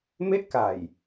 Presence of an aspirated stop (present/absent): absent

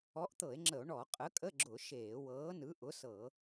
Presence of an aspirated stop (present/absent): absent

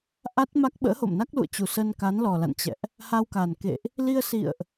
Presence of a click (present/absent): absent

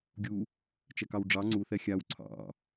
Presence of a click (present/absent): present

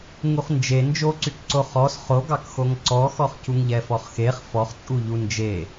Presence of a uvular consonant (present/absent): present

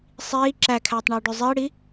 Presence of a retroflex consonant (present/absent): present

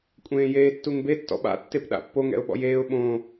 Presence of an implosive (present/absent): present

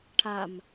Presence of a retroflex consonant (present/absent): present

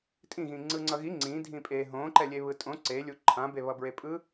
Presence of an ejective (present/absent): present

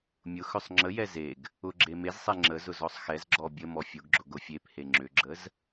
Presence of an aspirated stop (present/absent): absent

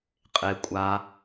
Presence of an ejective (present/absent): present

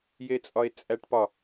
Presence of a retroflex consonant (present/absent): present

